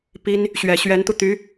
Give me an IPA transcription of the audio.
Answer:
p i˥ n | ɕ ɥ ɛ˨˩ ɕ ɥ ɛ˧˥ n t̪ u˧ t̪ y˧˥

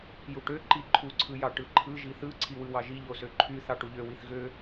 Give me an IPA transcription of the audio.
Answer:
j u ʈ ø ǃ i ǃʰ u ǀʰ ɯ j ɑ ʈ ɯ ǃʰ ɯ ʒ i θ ɯ ǀʰ i w ɯ w ɑ ʒ i ʎ o s ø ǃʰ y θ ɑ ʈ u ʎ ø w i θ ɣ ø

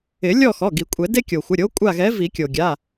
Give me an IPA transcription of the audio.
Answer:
ɪ˨˩˦ lʲ ɔ˦˨ x ɔ˩˧˩ ɡ i˨˩˦ kʷʼ ɛ˨˩˦ d e˦ kʲ o˩ xʷ ɪ˩˧˩ ɾʲ o˨˥ kʷʼ a˦˨ ɣ ɛ˨˥ v i˨˩˦ kʲ o˩ ɡʲ a˩˧˩

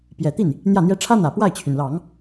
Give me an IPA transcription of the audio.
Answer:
p j ɛ˨˩ t̪ i˥˩ n | n̪ j ä˥˩ n̪ j ɛ˥ ʈ͡ʂʰ ä˥ n̪ ä˨˩ p w a˥˩ ɪ̯ t͡ɕʰ y˩ n l ɑ˨˩˦ ŋ

